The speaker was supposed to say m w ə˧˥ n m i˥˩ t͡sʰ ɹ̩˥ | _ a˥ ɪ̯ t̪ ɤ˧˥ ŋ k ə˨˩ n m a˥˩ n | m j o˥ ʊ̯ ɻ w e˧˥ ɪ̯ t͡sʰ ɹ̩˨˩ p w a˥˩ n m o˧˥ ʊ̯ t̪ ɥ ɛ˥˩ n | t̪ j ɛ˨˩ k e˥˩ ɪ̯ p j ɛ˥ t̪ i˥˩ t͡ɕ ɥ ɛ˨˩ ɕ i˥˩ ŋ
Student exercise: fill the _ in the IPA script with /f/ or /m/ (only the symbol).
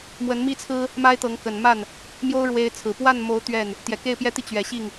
m